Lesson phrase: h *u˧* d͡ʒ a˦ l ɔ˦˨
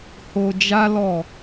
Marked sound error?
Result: yes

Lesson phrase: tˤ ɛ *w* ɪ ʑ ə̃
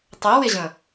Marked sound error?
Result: no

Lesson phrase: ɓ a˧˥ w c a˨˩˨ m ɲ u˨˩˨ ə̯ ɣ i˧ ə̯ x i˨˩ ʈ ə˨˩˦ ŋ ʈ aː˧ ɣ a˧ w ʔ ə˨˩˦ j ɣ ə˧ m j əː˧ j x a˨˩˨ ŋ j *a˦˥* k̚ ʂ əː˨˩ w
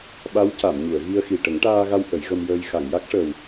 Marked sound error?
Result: no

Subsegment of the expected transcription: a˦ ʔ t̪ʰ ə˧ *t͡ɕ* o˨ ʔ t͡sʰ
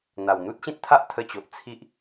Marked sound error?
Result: no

